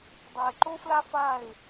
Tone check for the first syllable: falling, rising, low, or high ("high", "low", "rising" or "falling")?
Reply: low